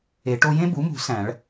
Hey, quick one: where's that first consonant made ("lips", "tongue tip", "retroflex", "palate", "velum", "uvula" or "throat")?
retroflex